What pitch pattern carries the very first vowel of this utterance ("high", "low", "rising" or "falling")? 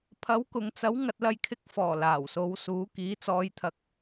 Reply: rising